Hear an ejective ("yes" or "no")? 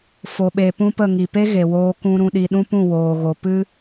no